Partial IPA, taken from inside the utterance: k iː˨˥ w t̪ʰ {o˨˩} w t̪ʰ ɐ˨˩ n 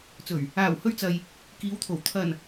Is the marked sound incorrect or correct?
correct